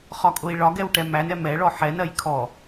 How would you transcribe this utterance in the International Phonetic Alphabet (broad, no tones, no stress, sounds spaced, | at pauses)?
χ ɒ kʼ ʊ i̯ ɭ ɒ ɡ ɛ w ʈ ɛ m æ n ɛ m ɛ ɭ ɔ ħ ɛ n ɜ j kʰ ɔ